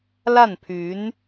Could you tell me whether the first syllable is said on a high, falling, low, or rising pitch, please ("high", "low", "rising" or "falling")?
falling